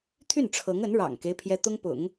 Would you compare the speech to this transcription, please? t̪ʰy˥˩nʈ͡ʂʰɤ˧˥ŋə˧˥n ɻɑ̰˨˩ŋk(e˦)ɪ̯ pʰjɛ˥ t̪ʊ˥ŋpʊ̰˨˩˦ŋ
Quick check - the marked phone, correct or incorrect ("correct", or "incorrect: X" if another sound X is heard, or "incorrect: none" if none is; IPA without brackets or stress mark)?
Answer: correct